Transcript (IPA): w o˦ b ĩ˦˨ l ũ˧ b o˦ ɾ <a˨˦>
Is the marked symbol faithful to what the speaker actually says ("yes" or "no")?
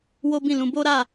no